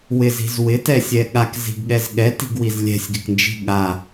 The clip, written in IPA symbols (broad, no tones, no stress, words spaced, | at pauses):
wɪzi̤z wɪtɛsʲɛ ɠakzi̤ɡɠɛz ɠɛti̤ɡwiz lʲɛ̤sʲɡɪknd͡ʒi̤ ɠa